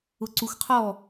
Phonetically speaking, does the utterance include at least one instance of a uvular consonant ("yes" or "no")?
yes